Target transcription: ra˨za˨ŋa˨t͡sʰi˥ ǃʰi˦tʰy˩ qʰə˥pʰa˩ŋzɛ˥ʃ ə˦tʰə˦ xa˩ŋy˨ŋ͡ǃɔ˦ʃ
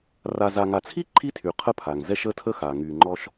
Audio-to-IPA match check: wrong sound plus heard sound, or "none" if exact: none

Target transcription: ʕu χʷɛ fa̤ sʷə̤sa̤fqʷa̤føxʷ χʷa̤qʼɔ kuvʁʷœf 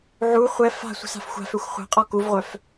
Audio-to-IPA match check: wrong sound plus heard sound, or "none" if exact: qʷ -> xʷ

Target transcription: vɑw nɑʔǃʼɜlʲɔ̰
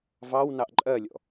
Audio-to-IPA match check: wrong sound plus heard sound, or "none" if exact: none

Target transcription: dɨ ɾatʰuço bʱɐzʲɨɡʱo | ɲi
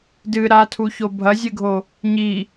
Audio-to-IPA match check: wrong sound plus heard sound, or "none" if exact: none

